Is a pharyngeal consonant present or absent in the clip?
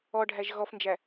absent